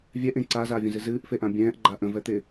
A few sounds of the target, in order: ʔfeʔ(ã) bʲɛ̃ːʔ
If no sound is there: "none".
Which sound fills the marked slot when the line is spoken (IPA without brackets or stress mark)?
ã